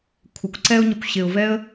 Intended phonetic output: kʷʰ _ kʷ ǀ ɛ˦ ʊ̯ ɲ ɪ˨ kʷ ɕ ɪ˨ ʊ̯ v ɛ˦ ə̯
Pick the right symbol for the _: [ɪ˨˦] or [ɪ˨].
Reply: ɪ˨˦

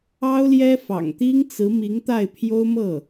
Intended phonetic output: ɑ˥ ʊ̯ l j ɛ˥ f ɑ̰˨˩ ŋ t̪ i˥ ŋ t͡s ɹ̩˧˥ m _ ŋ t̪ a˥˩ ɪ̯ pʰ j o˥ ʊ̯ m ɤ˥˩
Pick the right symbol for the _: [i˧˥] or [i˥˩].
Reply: i˧˥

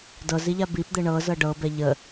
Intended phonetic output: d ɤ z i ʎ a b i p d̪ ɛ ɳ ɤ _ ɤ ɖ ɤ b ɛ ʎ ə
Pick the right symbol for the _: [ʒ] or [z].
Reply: z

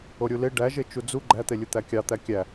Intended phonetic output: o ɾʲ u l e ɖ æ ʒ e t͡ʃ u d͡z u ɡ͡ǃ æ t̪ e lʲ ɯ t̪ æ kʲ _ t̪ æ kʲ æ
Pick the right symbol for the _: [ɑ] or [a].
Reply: ɑ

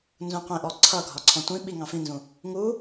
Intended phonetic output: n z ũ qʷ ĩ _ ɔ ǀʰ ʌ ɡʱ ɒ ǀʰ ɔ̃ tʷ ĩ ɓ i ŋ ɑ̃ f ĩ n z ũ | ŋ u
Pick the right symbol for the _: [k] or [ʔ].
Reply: ʔ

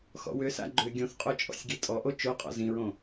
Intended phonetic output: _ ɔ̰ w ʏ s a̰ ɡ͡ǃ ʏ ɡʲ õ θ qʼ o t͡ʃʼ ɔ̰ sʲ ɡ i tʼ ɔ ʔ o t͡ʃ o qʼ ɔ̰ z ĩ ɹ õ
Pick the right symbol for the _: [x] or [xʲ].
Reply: x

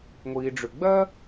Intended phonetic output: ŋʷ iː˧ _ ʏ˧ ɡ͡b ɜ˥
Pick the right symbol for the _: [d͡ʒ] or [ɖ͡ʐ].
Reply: ɖ͡ʐ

